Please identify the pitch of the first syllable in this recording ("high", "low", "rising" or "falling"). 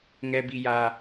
high